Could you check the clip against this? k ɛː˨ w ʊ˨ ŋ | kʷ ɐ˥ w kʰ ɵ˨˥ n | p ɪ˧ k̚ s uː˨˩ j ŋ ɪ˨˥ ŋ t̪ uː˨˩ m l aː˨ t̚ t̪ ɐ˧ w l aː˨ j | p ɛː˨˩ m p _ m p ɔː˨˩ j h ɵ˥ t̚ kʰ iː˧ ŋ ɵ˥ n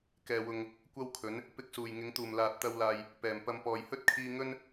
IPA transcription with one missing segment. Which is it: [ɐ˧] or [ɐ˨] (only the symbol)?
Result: ɐ˧